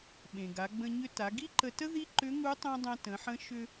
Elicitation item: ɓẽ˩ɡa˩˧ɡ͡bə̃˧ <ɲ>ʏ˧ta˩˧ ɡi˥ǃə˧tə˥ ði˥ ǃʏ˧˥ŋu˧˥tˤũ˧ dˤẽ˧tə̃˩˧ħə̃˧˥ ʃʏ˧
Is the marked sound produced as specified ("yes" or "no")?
yes